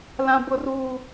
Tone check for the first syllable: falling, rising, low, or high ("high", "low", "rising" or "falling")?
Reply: high